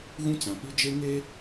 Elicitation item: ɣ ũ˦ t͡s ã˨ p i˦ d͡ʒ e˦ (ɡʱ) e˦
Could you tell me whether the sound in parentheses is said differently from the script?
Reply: yes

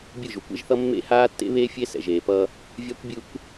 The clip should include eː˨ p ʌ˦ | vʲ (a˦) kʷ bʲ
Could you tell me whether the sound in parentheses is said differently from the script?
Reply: no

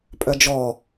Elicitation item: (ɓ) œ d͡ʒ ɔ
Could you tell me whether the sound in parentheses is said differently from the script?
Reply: yes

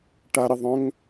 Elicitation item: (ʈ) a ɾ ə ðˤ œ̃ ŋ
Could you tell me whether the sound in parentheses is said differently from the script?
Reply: no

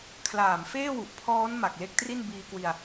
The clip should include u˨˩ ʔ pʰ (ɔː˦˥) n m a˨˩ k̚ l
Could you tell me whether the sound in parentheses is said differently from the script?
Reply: no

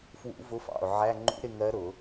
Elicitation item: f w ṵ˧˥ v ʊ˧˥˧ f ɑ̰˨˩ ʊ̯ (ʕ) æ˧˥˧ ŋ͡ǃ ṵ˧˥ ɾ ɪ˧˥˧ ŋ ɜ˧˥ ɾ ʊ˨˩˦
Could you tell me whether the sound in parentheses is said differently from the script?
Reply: no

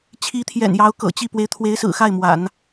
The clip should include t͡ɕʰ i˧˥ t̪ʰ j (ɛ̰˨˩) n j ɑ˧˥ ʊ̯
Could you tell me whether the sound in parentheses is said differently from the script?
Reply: no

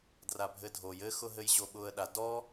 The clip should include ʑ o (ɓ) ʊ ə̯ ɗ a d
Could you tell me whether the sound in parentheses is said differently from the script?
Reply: no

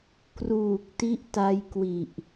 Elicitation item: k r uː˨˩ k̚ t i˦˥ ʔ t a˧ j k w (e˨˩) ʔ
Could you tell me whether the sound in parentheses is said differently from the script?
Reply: yes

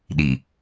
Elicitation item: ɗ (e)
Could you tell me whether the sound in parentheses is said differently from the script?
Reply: yes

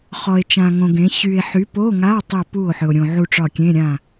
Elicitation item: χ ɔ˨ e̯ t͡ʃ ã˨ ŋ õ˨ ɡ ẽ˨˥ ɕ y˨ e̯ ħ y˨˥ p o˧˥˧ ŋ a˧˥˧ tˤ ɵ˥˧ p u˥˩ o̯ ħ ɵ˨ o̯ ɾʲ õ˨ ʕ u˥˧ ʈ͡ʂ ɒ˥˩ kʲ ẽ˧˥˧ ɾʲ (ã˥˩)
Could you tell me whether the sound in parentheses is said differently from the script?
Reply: no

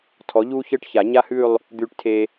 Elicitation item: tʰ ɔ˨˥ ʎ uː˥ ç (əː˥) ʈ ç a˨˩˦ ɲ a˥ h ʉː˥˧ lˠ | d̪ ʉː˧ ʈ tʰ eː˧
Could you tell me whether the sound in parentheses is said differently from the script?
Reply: no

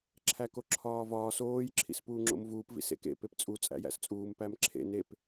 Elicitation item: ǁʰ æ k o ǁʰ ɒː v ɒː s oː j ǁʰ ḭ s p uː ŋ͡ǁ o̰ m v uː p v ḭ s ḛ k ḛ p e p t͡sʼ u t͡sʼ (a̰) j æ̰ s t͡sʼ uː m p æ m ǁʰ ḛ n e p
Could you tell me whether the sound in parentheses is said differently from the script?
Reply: yes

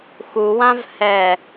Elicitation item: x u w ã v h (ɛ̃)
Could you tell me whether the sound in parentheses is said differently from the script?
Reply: yes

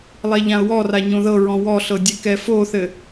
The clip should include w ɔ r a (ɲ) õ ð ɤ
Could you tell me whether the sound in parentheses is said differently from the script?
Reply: no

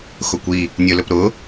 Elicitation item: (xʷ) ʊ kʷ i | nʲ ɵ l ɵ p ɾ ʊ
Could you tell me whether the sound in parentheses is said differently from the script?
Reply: yes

